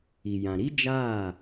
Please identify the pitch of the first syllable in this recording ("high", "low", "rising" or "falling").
low